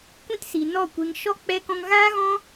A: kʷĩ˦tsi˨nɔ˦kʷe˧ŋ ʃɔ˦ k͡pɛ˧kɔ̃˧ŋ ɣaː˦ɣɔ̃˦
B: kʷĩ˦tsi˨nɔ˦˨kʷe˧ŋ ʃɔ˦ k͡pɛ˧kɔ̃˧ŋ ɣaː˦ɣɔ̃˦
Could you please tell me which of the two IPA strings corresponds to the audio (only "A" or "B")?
B